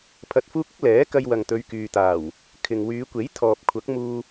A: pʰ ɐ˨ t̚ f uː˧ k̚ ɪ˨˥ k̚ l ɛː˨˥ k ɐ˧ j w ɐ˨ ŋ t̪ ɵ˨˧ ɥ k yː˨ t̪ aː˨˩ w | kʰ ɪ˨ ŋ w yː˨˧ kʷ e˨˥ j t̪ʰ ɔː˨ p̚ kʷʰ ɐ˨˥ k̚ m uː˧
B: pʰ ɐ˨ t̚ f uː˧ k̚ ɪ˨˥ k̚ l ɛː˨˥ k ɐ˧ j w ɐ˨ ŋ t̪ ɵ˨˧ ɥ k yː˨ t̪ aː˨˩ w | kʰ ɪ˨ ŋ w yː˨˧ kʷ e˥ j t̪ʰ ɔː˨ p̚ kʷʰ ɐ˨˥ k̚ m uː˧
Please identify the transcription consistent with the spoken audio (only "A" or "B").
A